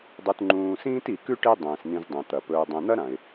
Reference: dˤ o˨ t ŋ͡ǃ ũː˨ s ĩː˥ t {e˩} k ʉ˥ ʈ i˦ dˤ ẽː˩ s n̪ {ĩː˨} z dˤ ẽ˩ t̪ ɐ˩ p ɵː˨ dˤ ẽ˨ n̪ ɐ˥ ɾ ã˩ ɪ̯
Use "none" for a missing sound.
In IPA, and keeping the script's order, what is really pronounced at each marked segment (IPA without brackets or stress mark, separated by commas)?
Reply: i˩, ĩ˨